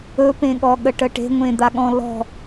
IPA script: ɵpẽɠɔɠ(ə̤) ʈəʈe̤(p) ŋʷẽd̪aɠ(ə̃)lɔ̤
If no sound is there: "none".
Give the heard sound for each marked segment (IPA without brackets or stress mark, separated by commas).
ə, none, ɔ̃